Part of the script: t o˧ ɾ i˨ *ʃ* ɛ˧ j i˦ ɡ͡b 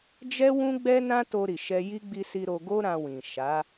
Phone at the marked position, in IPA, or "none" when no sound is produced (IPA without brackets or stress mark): ʃ